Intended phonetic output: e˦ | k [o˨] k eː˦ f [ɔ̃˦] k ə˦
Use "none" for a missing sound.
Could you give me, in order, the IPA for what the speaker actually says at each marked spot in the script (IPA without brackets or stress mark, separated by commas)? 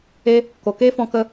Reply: o˨, ɔ̃˧